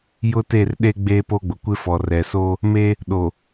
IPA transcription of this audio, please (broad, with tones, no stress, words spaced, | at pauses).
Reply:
jʊ˦te˦˨rɗe˦ ɡ͡beː˦po˦ɡ͡bʊ˨ kʷɪ˦fɔ˨ rɛ˨so˦ | me˦ | ɗo˨